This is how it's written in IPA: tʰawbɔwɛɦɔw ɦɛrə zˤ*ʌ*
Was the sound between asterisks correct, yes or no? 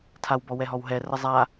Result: no